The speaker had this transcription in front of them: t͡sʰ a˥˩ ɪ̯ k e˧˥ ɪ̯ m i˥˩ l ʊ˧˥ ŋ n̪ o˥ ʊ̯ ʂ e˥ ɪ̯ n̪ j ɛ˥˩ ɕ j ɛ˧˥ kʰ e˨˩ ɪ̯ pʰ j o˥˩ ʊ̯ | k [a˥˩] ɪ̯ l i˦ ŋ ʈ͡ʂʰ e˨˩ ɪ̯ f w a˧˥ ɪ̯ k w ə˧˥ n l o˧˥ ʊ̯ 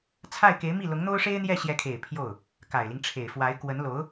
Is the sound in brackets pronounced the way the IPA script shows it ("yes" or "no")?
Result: no